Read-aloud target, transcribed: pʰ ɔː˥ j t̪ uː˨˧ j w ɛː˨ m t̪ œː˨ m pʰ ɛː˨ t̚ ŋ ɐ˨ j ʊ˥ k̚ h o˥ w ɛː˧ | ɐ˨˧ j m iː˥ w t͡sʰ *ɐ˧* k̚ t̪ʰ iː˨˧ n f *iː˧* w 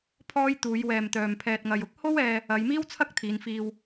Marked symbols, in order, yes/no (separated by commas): no, yes